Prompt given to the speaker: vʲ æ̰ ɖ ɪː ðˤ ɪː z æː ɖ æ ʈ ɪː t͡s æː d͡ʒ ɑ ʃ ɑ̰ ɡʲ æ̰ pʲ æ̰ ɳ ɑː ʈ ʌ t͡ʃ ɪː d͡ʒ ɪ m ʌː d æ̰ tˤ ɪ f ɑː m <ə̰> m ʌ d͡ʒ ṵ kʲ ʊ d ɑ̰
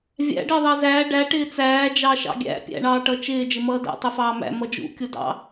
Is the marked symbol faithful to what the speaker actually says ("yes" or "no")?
no